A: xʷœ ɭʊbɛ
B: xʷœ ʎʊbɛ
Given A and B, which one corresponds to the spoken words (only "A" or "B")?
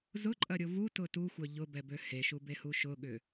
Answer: B